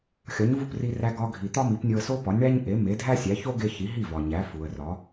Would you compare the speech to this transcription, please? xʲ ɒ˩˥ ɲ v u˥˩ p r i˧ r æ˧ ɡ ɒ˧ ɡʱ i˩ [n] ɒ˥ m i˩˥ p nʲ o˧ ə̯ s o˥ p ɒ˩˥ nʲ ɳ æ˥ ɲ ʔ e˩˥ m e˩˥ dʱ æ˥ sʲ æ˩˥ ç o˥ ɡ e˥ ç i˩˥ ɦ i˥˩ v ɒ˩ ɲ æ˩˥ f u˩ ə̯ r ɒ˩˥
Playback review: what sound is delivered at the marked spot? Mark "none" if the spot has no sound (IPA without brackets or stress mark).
t̪